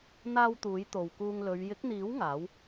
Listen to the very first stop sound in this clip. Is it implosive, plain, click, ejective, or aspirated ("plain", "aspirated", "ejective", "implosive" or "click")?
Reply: plain